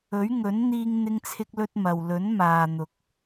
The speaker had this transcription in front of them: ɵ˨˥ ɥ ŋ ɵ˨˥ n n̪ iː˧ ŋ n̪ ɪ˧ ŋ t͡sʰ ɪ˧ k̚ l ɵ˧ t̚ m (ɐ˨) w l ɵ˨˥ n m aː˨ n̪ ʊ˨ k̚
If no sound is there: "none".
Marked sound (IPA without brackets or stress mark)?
ɐ˨